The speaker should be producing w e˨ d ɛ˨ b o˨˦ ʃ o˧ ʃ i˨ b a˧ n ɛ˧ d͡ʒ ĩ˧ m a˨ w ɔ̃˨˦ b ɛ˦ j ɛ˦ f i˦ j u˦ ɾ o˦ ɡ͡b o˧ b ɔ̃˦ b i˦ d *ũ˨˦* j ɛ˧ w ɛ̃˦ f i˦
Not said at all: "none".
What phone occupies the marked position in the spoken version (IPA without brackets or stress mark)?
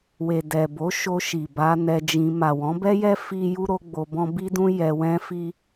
ũ˦